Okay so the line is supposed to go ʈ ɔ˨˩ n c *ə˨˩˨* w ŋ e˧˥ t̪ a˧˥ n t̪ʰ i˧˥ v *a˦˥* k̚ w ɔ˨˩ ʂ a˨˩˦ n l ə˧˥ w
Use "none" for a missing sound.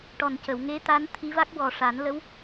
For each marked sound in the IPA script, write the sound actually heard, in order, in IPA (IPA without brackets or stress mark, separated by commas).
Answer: ə˨˩˨, a˦˥